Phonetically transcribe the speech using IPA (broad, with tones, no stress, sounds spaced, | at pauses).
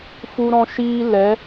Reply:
f u˦ ɾ ɔ̃˦ ʃ iː˦ l ɛ˨˦